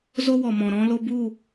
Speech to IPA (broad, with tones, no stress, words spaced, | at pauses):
zo˦wɔ˨mɔ̃˨ ɾɔ̃˧lo˧bu˦˨